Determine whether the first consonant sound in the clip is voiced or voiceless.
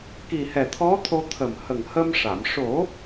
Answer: voiceless